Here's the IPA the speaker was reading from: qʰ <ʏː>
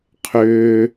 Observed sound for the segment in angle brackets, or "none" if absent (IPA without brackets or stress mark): ʏː